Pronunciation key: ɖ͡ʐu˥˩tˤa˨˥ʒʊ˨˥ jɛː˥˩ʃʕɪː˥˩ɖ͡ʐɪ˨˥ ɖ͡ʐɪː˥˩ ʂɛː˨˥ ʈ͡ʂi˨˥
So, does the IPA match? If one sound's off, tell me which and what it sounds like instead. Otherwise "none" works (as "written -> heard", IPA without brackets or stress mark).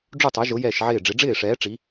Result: none